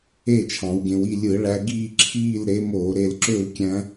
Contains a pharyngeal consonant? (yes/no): no